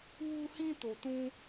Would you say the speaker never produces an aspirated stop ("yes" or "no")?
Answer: yes